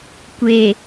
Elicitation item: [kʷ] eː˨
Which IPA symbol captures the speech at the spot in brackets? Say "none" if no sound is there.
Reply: kʷ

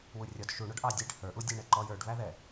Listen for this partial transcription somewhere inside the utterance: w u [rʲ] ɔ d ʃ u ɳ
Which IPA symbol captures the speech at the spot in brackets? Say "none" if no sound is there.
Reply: rʲ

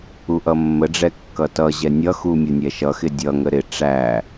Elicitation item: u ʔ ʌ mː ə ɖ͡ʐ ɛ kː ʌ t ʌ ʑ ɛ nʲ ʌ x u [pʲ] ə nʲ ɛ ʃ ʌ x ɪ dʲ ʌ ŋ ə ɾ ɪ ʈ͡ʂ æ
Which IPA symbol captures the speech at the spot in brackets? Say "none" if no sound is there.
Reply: mʲ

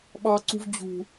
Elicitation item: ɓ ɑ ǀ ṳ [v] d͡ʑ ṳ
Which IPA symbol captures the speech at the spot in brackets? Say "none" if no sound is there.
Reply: v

